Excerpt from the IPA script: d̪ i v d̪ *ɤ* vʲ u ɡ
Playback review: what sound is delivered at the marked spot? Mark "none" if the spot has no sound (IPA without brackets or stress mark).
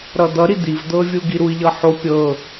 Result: ɤ